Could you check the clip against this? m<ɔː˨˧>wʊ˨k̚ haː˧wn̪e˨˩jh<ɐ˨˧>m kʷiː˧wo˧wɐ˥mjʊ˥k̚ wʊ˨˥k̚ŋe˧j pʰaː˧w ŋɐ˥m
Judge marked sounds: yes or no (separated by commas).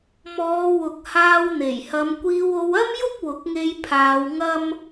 yes, yes